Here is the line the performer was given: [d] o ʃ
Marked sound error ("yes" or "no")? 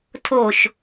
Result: yes